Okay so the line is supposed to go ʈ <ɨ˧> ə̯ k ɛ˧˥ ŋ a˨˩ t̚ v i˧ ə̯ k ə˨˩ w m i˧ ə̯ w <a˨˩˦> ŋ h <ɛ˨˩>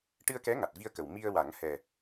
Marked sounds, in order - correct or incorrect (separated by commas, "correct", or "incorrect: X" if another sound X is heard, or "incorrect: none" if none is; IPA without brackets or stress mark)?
correct, correct, correct